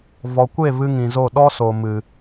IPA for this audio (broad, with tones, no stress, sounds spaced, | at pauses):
v ɔ˨ kʷ e˦˨ v ɨ˦ ŋ ĩ˨ z o˦˨ ɗ ɔ˦ s o˨ m ɨ˨